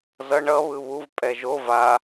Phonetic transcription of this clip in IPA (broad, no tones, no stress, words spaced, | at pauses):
zʌ ɳʌ βɯβuv pʼɛʒo va